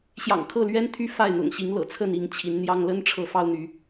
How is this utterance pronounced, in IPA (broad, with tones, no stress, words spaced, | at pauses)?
ɕjɑ̰˨˩ŋkʰɤ˥˨lɥɛ˦nt̪ʰy˦ fa˥˨ɪ̯n̪ʊ̰˨˩ŋɕi˨˦ŋ lɤ̰˨˩t͡sʰə˥˨ni˥˨ŋ t͡ɕʰi˨˦nn̪jɑ˦ŋ lə˦nʈ͡ʂʰɤ˨˦ fɑ˦ʊ̯n̪y˨˦